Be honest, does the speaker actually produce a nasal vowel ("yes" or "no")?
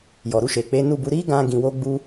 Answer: yes